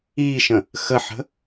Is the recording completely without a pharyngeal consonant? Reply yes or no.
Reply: no